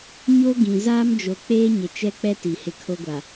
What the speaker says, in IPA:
ɲ o˦ ɡ ĩ˨ z aː˦ m d͡ʒ o˨ k͡p eː˦ ɲ ɪ˨ t͡ʃ ɛ˦ k͡p ɛ˦ t i˨ h ɪ˦ kʰ o˦ ɡʷ a˨

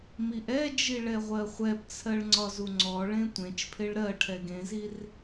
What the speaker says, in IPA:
m i ʔ ɛ d͡ʒ i ɭ ɛ ʁʷ ɜ χʷ ɛ p t͡sʰ ɜ ɭ ŋ͡ǀ ɒ z u ŋ͡ǀ ɔ ɭ ẽ tʷ ẽ t͡ʃ pʰ e ɭ ɾ ɜ ʈʰ ɛ ɡ ẽ z i r

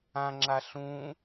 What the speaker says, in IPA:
ã ŋ͡ǁ a ɬ ũ

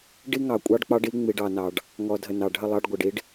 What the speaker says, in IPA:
ɖ i˦ ŋ ɑ˨ kʷʼ ɑ˦ ɖ k͡p ɑ˦ ɖ i˦ ŋ͡m i˨ ɖ ɑ˨ n ɑ˨ ɖ | ŋ ɔ˨ dʱ ə˨ n ɑ˨ ɖʱ ə˦˨ lˠ ɑ˦ ɖ ɡʷ ə˨ ɖ i˦ ɖ

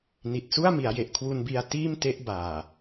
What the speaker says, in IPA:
n i˨˩ t̚ s u˥˩ a̯ m i˩˦ a̯ j e˨˩ ʔ kʰ w u˧ n b i˧ a̯ t iː˥˩ m t e˦˥ ʔ b aː˨˩

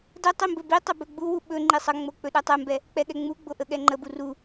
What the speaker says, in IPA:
d ə tˤ i m b ɵ b i tˤ ɵ b ɵ ɡ͡b u w u ɓ ɵ ŋ͡ǃ i sˤ ə ŋ͡m o k͡p ɵ ɗ ɛ tˤ ɛ m b ɛ | k͡p ɛ ɠ ɛ ŋ͡m u ɡ͡b o ʔ ə ɠ ɛ ŋ͡ǃ ə b u r u

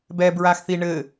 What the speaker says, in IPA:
b ɛ b ɹ a x θ i ɳ ɘ

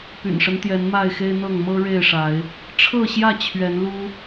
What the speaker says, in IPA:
p y̰˨˩ n ʂ ə˦ n t̪ j ɛ˨˦ n m a˥˨ ɪ̯ x e˦ ɪ̯ n̪ ɤ˥˨ ŋ m ɤ˦ ɻ e˥˨ ɪ̯ ʂ a˨˦ ɪ̯ | ʈ͡ʂʰ ɤ˥˨ ɕ j ä˥˨ t͡ɕʰ ɥ ɛ˨˦ n l u˦

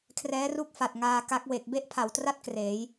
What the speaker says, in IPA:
kʰ r ɛː˦˥ r u˥˩ k̚ f a˨˩ t̚ ŋ aː˧ k a˦˥ k̚ w e˨˩ k̚ b e˦˥ ʔ pʰ a˩˦ w t r a˦˥ t̚ k r eː˩˦ j

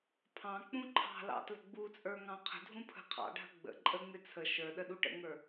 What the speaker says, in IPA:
pʰ ɑ̃ k͡p ũ ǃʰ ɑ̤ l ɑ̰ t l ə̤ ɡ͡b u t͡sʼ ə˞ ŋ ɑ̃ qʰ ə̤ dʱ ũ pʰ ə̤ qʰ ɑ̰ ɖʱ ə̤ ɡ͡b ə̰ ǃʼ ə ŋ͡m ɪ t͡sʰ ə ʃ ə˞ ɗ ə ɗ u ʈ ə̰ ŋ ə˞

